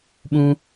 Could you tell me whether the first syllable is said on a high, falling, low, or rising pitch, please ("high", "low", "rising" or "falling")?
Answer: high